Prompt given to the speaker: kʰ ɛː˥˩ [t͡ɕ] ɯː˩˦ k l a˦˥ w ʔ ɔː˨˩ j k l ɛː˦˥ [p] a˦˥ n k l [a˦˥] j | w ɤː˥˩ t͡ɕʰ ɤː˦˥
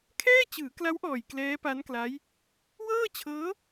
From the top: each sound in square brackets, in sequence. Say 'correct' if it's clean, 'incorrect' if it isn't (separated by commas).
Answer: correct, correct, correct